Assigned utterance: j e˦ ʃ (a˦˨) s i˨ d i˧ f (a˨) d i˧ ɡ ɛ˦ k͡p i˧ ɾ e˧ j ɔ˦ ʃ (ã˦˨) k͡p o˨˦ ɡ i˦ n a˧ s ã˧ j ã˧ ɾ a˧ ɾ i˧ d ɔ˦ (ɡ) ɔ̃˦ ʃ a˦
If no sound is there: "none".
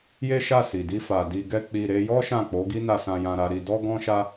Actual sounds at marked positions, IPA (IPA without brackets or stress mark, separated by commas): a˦˨, a˨, ã˦˨, ɡ